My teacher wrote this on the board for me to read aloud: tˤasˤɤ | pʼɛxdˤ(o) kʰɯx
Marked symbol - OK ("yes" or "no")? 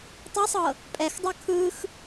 yes